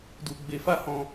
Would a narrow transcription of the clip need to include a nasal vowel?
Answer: yes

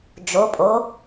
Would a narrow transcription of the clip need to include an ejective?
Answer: yes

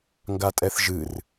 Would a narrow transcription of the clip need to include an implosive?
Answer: no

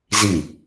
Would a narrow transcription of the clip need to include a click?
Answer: no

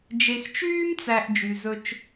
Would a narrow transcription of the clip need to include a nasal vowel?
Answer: no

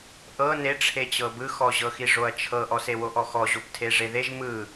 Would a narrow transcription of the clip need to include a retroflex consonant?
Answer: yes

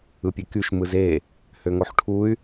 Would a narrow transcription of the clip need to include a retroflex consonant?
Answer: yes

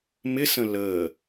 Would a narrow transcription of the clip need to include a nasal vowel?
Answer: yes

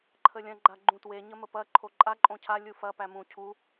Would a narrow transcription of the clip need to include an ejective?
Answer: yes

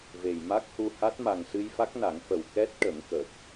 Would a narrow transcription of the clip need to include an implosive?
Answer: no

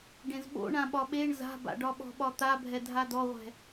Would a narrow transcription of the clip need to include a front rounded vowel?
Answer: no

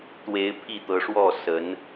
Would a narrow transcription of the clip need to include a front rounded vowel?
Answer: no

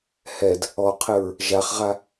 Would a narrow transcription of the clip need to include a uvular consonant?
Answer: yes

